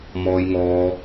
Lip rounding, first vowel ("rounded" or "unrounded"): rounded